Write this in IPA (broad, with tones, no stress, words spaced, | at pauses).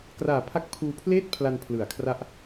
kraː˨˩pʰa˦˥k̚ pʰuː˧pʰleː˥˩t̚pʰla˧n pʰlɯ˨˩a̯kʰra˥˩ʔ